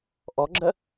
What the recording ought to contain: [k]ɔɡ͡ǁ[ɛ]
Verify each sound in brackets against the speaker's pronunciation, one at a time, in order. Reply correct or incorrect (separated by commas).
incorrect, incorrect